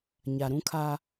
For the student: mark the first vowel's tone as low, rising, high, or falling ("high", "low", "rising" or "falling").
low